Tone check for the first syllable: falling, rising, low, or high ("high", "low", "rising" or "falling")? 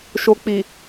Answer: low